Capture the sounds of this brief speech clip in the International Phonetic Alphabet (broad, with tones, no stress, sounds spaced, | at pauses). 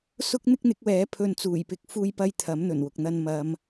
s ʊ˥ k̚ n̪ ɪ˥ k̚ n̪ ɪ˨˥ k̚ w ɛː˨˥ pʰ ɵ˧ n t͡s uː˨˩ j p ɪ˨˥ k̚ f uː˧ j p ɐ˧ j t̪ʰ ɐ˨˥ m n̪ ɵ˨˩ n w ʊ˨ k̚ n̪ ɐ˧ n m ɐ˨˧ m